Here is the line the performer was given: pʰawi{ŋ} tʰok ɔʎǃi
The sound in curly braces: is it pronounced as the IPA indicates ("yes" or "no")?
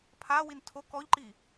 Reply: no